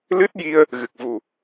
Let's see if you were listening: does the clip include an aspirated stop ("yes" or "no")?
no